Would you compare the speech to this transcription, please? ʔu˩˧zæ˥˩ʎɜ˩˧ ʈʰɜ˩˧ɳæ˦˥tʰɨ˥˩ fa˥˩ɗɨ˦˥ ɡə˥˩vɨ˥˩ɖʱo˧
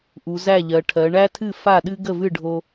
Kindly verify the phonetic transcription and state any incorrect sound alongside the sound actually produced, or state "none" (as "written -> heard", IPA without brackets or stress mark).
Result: none